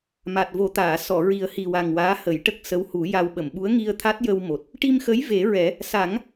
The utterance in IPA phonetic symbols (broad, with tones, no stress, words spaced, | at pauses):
ma˨˩t̚vo˨˩˦t̪aː˨˩˨ sɔ˨˩˨ ɹi˨˩ə̯hi˨˩wa˨˩ŋ waː˧˥hə˨˩˦jʈə˦˥k̚ sə˧˥whu˨˩˦ ja˧w ɓə˨˩˨mɓu˧˥ə̯ŋi˧ə̯t̪ʰa˦˥t̚ jə˧wmo˨˩t̚ | ʈi˧mxə˧˥j ve˨˩˦ɹɛ˨˩˦ | sa˨˩˦ŋ